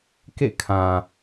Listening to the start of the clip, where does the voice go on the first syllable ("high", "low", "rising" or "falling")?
falling